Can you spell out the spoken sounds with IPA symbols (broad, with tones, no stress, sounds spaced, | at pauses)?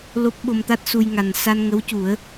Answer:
l o˦˥ p̚ ɓ o˧ m t̪ a˦˥ t̚ s u˧ j ŋ a˨˩ n s a˧ n ŋ ə˧˥ w c u˨˩˦ ə̯